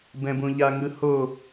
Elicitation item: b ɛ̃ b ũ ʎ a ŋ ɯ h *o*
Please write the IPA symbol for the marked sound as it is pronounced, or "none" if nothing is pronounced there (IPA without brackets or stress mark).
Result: o